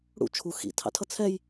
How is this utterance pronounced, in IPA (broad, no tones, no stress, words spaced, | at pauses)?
ɽṵ t͡ʃʰu xḭtʰɑ̰tʰʌ t͡sʰɛj